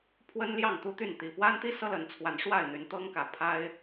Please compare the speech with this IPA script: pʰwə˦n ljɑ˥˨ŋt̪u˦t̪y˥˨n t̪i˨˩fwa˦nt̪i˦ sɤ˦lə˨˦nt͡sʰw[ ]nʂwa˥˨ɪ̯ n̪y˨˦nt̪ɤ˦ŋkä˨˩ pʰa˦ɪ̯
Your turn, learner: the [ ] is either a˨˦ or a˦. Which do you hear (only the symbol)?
a˨˦